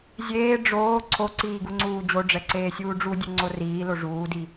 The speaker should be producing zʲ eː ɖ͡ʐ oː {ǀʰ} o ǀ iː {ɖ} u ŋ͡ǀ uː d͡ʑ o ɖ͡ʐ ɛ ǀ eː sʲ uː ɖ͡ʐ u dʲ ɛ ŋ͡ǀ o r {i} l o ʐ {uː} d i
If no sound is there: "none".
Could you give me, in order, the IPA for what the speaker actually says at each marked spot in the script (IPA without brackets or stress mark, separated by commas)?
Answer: ǀʰ, ɡ, iː, uː